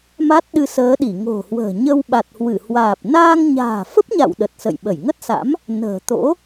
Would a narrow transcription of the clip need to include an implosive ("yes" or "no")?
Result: yes